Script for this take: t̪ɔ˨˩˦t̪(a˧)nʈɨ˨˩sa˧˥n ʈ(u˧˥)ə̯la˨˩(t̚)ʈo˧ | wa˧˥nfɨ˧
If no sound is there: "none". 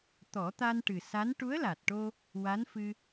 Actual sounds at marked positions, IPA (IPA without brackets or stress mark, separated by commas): a˧, u˧˥, t̚